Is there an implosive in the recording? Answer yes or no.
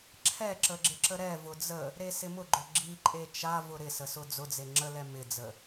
no